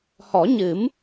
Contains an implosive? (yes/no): no